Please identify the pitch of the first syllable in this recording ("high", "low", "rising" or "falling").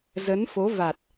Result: rising